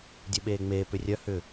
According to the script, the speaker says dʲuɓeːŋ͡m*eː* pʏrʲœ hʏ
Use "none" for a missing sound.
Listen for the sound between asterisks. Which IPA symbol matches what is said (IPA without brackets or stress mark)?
eː